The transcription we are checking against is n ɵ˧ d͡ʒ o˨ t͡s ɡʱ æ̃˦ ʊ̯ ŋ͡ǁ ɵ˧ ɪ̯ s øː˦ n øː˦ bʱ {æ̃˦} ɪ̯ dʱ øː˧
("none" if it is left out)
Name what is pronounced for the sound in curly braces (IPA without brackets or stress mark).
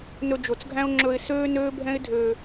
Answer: ɛ̃˦